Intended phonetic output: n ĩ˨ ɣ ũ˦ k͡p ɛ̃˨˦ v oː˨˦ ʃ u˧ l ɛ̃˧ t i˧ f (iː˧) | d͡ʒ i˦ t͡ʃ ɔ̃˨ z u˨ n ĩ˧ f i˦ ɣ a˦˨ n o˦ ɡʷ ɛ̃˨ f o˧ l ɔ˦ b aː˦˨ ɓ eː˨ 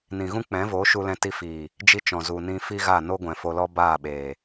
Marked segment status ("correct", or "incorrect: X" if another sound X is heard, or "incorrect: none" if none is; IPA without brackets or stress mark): incorrect: iː˨